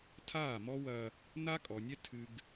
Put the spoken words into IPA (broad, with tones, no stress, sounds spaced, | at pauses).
tʰ aː˦˨ m ɔ˦ w ɐ˦ | n a˦ kʼ ɔ˨ nʲ ɛ˦ tʰ ɨ˦ ɡ